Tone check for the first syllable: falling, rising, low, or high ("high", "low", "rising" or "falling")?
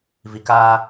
low